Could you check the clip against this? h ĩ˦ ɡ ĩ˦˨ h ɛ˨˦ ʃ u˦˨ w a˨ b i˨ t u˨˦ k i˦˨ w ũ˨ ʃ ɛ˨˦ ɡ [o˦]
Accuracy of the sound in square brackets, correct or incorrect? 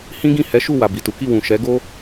correct